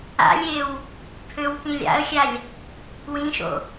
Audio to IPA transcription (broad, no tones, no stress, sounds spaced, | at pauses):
a̰ lʲ e w | pʰ ø w k ĩ lʲ a̰ ə̯ xʲ a lʲ | w ĩ ʃ o̰